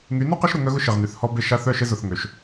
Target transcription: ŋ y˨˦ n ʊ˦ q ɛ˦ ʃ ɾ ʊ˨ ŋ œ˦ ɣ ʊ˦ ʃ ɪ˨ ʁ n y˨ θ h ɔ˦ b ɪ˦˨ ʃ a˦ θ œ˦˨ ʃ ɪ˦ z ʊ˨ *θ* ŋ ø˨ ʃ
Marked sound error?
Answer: no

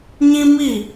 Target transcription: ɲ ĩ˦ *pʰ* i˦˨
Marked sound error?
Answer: yes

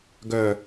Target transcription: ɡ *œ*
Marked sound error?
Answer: no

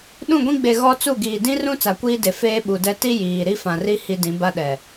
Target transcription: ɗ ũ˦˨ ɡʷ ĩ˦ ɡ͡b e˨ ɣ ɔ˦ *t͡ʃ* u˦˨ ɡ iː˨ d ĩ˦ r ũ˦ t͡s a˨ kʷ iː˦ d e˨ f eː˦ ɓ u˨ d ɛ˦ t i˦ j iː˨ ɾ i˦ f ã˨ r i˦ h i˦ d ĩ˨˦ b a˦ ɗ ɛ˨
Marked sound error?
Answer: yes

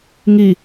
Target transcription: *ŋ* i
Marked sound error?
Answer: no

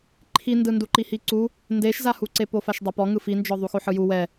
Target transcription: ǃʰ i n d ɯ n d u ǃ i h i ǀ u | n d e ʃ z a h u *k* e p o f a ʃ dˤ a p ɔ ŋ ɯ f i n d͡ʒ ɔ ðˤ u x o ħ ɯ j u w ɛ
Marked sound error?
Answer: yes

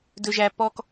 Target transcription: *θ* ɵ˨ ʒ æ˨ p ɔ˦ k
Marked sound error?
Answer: yes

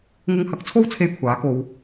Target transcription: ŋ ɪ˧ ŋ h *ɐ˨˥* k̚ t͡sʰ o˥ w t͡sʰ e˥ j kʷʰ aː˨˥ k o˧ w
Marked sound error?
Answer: no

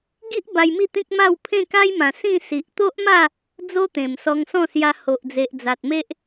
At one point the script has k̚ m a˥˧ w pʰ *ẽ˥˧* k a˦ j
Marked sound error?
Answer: no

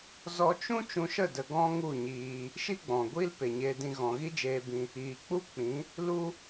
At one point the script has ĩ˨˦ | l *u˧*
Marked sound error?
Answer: yes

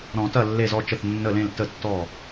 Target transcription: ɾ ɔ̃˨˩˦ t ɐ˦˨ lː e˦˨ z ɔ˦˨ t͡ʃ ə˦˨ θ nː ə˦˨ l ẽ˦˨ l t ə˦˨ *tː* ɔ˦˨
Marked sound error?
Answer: no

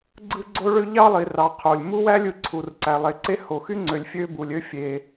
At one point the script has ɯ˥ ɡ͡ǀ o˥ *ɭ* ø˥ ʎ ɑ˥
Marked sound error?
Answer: no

